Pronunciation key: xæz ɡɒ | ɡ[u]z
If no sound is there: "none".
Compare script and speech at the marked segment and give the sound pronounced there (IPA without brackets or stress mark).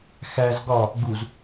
u